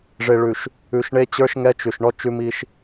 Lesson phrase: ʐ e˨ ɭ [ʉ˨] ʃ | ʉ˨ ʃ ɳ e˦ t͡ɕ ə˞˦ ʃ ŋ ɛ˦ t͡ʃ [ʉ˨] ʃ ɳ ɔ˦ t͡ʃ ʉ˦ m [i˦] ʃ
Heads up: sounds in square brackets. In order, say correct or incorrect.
correct, correct, correct

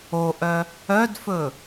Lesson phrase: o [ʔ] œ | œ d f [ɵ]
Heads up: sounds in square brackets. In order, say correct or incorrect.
correct, correct

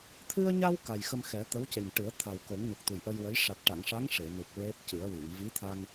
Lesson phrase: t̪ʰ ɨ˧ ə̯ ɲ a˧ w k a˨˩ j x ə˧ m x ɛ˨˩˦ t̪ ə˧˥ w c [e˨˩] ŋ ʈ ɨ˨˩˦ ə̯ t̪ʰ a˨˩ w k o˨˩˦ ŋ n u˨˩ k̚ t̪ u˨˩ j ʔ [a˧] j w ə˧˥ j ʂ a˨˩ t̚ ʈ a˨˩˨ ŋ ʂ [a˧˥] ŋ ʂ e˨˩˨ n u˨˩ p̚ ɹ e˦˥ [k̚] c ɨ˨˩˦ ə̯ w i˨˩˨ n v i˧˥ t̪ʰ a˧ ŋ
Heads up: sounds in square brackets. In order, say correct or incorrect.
correct, incorrect, correct, incorrect

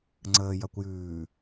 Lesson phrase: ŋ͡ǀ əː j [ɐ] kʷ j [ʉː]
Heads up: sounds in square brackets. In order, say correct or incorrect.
correct, correct

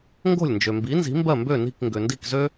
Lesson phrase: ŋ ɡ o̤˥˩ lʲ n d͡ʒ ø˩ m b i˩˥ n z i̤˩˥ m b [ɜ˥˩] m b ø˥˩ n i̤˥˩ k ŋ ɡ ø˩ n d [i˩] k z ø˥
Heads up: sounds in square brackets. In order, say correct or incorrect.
correct, incorrect

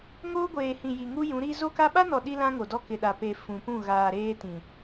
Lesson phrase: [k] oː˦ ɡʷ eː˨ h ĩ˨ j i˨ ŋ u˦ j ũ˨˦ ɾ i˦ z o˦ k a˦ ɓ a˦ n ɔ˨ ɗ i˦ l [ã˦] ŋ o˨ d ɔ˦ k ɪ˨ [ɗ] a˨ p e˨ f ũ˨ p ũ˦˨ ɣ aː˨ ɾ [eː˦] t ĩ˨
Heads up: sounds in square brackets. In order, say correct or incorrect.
incorrect, correct, correct, correct

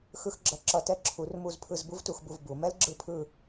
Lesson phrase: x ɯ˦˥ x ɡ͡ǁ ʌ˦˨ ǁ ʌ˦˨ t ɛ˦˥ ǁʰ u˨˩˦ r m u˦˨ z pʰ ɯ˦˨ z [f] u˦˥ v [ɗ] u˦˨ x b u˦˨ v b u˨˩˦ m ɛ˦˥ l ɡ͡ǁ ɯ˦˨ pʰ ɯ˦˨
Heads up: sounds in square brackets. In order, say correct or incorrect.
incorrect, incorrect

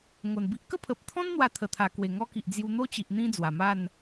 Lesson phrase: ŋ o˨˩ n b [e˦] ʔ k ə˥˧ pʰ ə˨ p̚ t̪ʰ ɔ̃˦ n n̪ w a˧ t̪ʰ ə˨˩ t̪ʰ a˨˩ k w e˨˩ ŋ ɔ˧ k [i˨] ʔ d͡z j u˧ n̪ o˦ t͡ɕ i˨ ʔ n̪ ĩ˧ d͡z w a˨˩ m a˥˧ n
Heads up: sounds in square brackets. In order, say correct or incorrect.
incorrect, correct

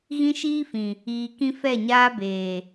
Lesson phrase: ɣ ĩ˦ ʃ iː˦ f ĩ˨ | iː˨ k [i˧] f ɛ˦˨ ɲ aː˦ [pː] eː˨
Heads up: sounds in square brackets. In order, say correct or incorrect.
incorrect, incorrect

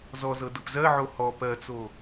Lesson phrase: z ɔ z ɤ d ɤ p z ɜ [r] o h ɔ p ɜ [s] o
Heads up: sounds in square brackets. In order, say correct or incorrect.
incorrect, incorrect

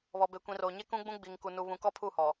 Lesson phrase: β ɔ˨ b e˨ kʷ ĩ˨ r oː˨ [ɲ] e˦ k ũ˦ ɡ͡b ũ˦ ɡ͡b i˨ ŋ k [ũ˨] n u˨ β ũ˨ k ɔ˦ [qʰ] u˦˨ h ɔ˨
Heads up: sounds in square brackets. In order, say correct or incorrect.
correct, incorrect, incorrect

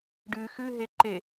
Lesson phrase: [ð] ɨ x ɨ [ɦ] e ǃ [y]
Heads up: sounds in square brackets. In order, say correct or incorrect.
incorrect, correct, incorrect

